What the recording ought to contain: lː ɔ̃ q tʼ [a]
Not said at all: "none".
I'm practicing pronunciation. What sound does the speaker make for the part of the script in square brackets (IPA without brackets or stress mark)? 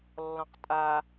a